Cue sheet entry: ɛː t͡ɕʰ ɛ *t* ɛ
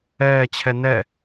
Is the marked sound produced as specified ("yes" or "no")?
no